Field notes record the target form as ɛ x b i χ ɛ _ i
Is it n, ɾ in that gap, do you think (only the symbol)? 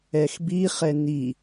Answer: n